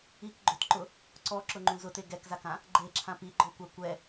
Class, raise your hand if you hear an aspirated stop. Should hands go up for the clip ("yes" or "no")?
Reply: yes